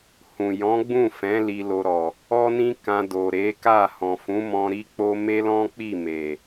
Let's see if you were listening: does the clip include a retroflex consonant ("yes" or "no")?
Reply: no